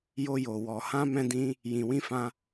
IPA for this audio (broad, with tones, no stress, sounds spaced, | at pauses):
j o˧ j o˨ w ɔ˨ h ã˧ m ɛ̃˧ d ĩ˧ | j ĩ˨ w ĩ˧ f ã˧